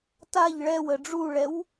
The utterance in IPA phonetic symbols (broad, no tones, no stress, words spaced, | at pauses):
taʎ ɭɛwə ɖ͡ʐuɭɛw